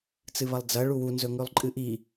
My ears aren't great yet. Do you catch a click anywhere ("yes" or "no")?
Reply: yes